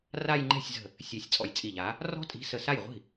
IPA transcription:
ra˥˧jŋ͡ǃɛ̤˥˩sʲzə̤˧˩ | sʲɛ˧˩sʲ t͡sʼɔ̰˧˩jt͡sʼi˧˩ʎa˨˥ | rɔ̤˥˧tʼi̤˨˥ sə˧˩sa˥˩jʁʷi̤˥˩

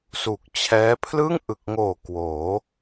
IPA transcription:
su˨˩k̚t͡ɕʰɛː˦˥ pʰlɯ˥˩ŋʔɯ˨˩k̚ŋoː˨˩ kwoː˩˦

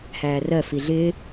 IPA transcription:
hæːrɜ fiɮɪː

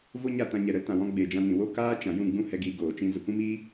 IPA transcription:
vo˦ɲa˦˨tã˧ ɲɛ˨ɾə˧ltã˨wɔ̃˧ ɡ͡be˨ d͡ʒã˧nĩ˨ wo˦kaː˦ t͡ʃã˨jũ˦˨ ɡ͡bũ˦hɛ˧ɡiː˧ ɡoː˨t͡ʃĩ˧ zə˨kʷĩ˦miː˦

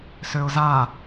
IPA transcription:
søʊ̯za

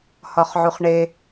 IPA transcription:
hɒχʕuχɳe

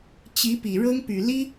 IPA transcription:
t͡ɕi˧˥pi˨˩ ɻɤ˥ŋpy˨˩ li˥

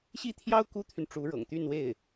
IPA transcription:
ɕi˥˩t̪ʰjɑ˥ʊ̯ ku˥t̪ʰy˨nʈ͡ʂu˧˥ɻɤ̰˨˩ŋ t̪y˥˧nwe˥˩ɪ̯

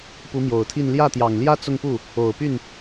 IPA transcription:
pu˧˥mjo˨˩ʊ̯t̪ʰi˥˧n ljä˥˩t̪jɑ˨˩ŋljä˥ t͡sʊ˥˧ŋpu˥˩ | o˨˩ʊ̯py˥˩n

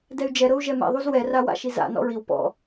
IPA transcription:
dɛy̯d͡ʒɛɾɤu̯ ʒɛmḛðˤuz wɛra wa̰ʃiza̰ nɔ̰ɹiw pɔ̰

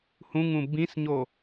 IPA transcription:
hũŋũ bĩsɲo

